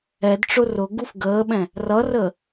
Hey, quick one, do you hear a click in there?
no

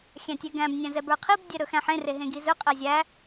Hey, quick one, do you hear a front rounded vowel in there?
no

